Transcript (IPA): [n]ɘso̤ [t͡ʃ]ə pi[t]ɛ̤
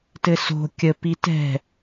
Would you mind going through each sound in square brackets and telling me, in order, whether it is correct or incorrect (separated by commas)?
incorrect, incorrect, correct